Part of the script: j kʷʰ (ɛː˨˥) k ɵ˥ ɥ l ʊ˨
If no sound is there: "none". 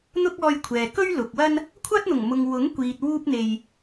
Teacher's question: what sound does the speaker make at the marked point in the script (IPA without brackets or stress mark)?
ɛː˨